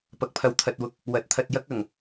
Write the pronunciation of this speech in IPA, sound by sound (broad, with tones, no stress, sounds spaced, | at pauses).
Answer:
p ɐ˨˥ k̚ pʰ ɐ˨˥ w t̪ʰ ɐ˨ t̚ w ʊ˨ k̚ | w ɐ˨˥ t̚ t̪ʰ ɐ˧ t̚ j ɐ˥ k̚ ɐ˨˩ ŋ